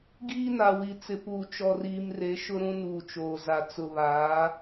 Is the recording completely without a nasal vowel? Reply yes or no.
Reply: no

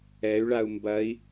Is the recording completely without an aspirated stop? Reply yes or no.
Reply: yes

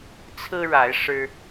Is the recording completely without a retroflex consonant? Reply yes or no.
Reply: no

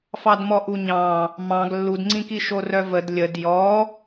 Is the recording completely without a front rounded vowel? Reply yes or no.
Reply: no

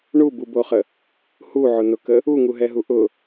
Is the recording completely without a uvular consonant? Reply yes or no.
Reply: no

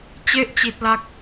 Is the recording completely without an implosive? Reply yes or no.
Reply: yes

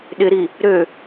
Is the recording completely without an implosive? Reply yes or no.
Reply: no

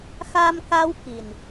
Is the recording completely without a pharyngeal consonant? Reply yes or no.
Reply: yes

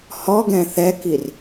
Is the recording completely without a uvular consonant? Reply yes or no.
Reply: yes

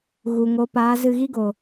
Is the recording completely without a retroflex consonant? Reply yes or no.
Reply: yes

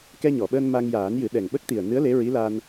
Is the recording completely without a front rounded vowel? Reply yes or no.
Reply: yes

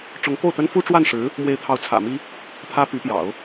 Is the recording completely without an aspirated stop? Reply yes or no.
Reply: no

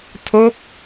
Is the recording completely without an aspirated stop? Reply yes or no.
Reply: no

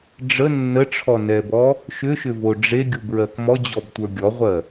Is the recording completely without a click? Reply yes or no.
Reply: yes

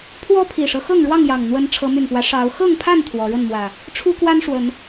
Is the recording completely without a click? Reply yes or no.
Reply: yes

